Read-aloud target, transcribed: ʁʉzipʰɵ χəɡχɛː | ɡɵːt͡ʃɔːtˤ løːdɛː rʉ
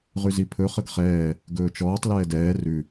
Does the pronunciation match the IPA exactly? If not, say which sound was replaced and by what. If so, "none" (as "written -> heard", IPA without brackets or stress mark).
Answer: øː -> ɛː